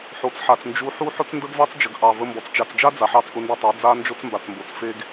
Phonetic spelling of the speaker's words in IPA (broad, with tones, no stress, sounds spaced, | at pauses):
ħ o˨ t͡s ħ a˨ t͡s n d͡ʒ u˧ ħ u˦ ħ ʊ˦ t͡s n d ə˦ ɡ v ɑ˦ t͡s d͡ʒ ə˨ ɡ ʔ ɑ˨ v ə˧ m b ɔ˨ t͡s t͡ʃ a˨ t͡s d͡ʒ a˦ d͡z a˨ ħ ɑ˧ t͡s ʔ ʊ˧ n d o˧ tˤ a˨˦ d͡z a˦ n d͡ʒ o˦ t͡s m b a˨ t͡s m b o˨ t͡s f e˦ ɡ